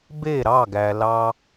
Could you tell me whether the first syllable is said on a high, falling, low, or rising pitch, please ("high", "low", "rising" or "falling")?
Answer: falling